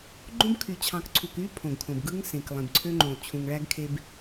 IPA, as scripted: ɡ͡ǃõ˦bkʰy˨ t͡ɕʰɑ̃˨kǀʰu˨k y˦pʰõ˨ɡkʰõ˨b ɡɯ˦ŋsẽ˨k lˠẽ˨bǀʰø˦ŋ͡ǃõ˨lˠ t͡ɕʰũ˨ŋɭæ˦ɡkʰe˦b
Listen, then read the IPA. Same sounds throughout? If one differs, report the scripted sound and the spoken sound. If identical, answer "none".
none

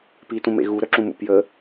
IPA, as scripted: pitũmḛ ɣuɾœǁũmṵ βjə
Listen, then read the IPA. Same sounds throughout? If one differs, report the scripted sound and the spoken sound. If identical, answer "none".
β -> p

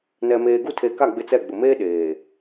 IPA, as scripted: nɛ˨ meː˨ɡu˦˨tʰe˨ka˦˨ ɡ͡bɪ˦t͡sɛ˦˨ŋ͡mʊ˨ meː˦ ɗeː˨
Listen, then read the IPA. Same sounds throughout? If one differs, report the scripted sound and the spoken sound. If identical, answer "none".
ŋ͡m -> ɡ͡b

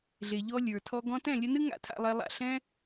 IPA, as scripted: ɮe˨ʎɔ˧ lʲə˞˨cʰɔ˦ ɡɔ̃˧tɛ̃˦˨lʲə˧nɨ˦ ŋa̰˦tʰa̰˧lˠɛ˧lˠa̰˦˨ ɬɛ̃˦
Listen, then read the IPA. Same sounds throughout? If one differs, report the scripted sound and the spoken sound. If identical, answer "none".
cʰ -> tʰ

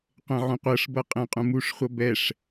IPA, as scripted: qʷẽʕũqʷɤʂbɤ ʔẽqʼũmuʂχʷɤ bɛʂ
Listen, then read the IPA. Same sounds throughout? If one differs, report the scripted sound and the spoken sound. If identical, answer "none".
ʔ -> qʼ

